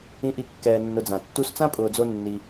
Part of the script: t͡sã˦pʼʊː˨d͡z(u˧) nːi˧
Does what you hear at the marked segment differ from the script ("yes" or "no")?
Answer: yes